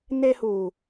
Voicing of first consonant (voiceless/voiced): voiced